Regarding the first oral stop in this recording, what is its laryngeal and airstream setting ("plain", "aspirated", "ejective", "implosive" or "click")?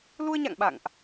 implosive